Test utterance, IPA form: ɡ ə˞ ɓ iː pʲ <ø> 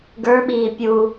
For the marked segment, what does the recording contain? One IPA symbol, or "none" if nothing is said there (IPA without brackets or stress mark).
u